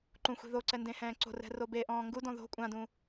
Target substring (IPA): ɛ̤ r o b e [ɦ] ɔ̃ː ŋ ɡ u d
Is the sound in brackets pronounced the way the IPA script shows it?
no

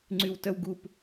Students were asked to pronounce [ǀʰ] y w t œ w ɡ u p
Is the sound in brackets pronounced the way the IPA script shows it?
no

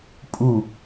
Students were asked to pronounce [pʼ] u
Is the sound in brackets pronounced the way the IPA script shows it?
yes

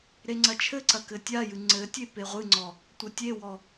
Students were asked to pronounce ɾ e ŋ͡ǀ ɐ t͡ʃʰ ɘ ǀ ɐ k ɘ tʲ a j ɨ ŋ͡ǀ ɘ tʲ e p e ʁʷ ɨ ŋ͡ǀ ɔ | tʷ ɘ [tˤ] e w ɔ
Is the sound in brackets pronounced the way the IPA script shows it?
no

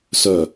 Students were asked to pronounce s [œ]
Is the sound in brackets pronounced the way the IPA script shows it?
yes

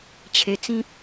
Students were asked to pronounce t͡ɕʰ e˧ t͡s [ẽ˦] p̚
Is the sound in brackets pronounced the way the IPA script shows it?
no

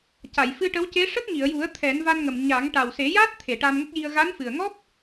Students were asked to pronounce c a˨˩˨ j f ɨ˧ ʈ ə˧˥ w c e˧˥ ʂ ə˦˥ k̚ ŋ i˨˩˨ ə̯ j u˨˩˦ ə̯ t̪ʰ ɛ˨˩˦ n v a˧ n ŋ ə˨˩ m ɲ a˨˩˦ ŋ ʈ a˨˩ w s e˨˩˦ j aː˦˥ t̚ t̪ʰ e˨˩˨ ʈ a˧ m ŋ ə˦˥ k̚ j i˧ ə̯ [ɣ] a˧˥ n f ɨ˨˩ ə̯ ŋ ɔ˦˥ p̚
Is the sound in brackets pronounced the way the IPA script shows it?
yes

